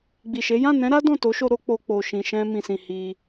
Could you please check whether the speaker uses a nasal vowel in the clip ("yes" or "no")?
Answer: yes